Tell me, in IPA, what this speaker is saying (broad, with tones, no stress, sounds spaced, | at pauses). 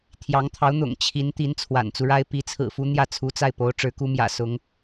t̪ʰ j ɑ˧˥ ŋ t̪ʰ ɑ˧˥ ʊ̯ n̪ ʊ̰˨˩ ŋ t͡ɕʰ i˧˥ n t̪ i˧˥ n t͡sʰ w a̰˨˩ n t͡s u˦ ɻ a˥ ɪ̯ p i˧˥ t͡sʰ ɹ̩˨˩ f u˧˥ n̪ j ä˥˩ t͡sʰ u˧˥ t͡s a˥˩ ɪ̯ p o˧˥ ʊ̯ ʈ͡ʂ ɻ̩˧˥ k u˧˥ m j ä̰˨˩ s ʊ˧˥ ŋ